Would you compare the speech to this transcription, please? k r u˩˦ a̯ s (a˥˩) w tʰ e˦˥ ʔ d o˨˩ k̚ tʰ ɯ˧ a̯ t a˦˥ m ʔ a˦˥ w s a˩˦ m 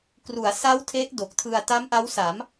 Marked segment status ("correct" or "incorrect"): incorrect